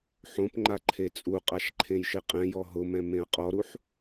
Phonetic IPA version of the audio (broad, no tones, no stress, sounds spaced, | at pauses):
ħ õ p ŋ͡ǃ a ǃʰ e t͡sʼ u qʼ a ʃ ǃʰ ẽ j ʃ ɪ qʼ ɛ̃ j ɔ ɦ ʊ m ɛ̃ m ẽ ɐ̯ qʼ ɔ ɾ u ħ